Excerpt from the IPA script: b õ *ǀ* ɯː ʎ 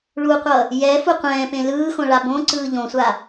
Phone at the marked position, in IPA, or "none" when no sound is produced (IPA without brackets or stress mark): ǀ